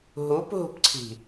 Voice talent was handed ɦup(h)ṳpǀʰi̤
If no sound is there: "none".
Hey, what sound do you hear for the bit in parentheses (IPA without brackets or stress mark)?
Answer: ɦ